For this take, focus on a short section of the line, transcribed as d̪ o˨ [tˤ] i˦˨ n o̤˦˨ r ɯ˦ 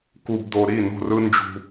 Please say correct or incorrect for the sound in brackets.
incorrect: ɾ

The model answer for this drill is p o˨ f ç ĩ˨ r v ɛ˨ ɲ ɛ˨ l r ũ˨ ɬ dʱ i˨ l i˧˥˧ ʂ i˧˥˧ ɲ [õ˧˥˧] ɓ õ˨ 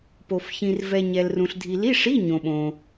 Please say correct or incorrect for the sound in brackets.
incorrect: õ˨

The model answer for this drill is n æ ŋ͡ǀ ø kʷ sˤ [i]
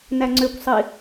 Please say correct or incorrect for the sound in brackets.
correct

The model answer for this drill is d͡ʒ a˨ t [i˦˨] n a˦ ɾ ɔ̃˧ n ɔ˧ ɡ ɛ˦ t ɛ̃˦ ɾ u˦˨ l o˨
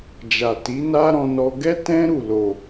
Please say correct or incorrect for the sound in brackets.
incorrect: i˨˦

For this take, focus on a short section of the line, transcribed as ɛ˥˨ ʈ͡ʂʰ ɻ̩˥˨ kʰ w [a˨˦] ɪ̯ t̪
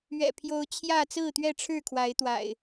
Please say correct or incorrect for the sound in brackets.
correct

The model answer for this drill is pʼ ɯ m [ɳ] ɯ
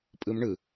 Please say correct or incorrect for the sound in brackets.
correct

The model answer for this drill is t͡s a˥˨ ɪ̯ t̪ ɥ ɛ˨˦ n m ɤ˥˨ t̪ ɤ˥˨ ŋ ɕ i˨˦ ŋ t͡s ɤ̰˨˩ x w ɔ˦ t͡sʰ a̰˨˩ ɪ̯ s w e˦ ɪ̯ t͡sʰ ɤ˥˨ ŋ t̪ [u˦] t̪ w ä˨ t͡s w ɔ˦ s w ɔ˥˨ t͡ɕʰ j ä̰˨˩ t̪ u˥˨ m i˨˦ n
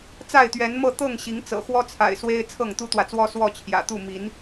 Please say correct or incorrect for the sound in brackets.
correct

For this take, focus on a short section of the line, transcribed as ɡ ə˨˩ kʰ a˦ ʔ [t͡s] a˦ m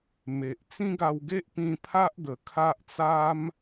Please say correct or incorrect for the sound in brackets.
correct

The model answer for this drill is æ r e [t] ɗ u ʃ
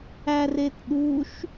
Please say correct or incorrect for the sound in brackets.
correct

